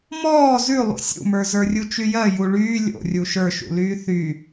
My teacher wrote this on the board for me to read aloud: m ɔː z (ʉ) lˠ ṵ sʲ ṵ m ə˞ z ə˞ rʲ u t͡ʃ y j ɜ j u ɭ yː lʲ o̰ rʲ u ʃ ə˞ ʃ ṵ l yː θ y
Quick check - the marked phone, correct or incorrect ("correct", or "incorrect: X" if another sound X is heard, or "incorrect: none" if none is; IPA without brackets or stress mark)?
correct